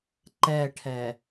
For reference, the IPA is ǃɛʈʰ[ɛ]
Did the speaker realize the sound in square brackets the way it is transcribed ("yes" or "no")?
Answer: yes